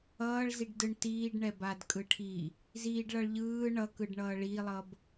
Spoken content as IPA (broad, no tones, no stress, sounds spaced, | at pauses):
ʌː ɭ z i ɖ d ɯ ɳ t iː ɖ ɳ ɛ b a d kʼ ɯ ʈʰ i | z iː ɖ ɭ ʌ ɭ ʎ ɯː ɳ ʌ k ɯ ɖ ɳ ʌː ɭ i lˠ ʌ b